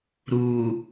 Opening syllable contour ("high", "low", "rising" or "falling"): low